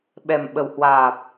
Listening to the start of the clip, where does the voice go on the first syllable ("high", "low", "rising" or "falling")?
low